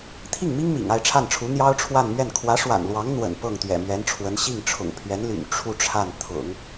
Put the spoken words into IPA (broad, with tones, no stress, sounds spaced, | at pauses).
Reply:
t̪ʰ i˥˩ ŋ m i˥ ŋ m ḭ˨˩ ŋ a˥˧ ɪ̯ ʈ͡ʂʰ a˥˩ n ʈ͡ʂʰ u˧˥ n̪ j ɑ˥ ʊ̯ ʈ͡ʂʰ w a˥˧ n m ɥ ɛ˥˩ n kʰ w ä˧˥ ʂ w a̰˨˩ n l w ɑ˧˥ ŋ n̪ w ə̰˨˩ n p ɤ˥˩ ŋ t̪ ɥ ɛ̰˨˩ m ɥ ɛ˧˥ n ʈ͡ʂʰ w ə˧˥ n ɕ i˥˩ ŋ ʈ͡ʂʰ ʊ̰˨˩ ŋ pʰ ɥ ɛ˧˥ n l y̰˨˩ n ʈ͡ʂʰ u˥˧ ʈ͡ʂʰ a˥˩ n t̪ʰ ʊ̰˨˩˦ ŋ